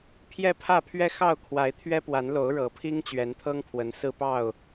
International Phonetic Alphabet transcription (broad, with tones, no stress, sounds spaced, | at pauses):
pʰ j ɛ˦ pʰ ä˥˨ pʰ ɥ ɛ˦ x ɑ˥˨ ʊ̯ kʰ w a˨˦ ɪ̯ t̪ʰ ɥ ɛ˦ p w a˨˦ n l o˨˦ ʊ̯ ɻ ɤ˨˦ pʰ i˦ ŋ t͡ɕ ɥ ɛ˨˦ n t̪ʰ ɤ˦ ŋ pʰ w ə˨˦ n s ɹ̩˦ p ɑ˥˨ ʊ̯